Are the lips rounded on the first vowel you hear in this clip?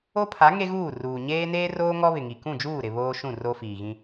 yes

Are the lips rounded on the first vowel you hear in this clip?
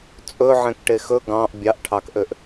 yes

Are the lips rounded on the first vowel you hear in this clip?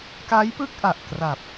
no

